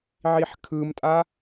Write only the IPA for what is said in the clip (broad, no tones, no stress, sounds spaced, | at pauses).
ʕ i ħ kʰ ɯ m tʼ a